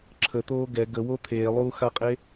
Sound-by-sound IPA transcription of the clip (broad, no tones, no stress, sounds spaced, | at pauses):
ǁʰ ə t̪ oː ɡ ɛ ɡ ə w o t̪ʰ eː lˠ uː x a qʼ e